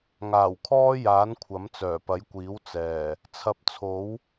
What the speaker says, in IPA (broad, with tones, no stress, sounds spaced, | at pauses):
ŋ aː˨˩ w kʰ ɔː˥ j aː˨˥ n kʷʰ ɐ˨˥ m t͡s œː˨˩ p ɐ˨˥ j kʷ iː˨˥ w t͡s ɛː˨˩ | t͡sʰ ɐ˨ p̚ t͡sʰ o˨˥ w